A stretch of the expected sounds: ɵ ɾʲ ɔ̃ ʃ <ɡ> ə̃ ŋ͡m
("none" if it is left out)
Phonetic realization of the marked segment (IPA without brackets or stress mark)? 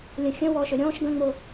ɡ